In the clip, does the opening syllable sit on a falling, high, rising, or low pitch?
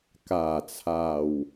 low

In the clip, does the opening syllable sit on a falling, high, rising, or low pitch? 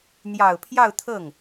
low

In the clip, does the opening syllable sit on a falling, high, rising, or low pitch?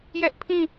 high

